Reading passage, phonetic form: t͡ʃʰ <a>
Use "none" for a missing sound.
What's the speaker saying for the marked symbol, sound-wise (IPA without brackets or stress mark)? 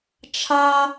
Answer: a